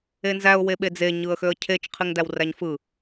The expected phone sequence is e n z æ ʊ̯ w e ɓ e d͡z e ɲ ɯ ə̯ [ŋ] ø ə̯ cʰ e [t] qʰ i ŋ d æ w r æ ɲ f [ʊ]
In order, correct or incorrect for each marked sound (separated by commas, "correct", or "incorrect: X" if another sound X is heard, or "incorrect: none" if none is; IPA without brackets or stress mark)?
incorrect: x, incorrect: t͡ʃ, incorrect: ɯ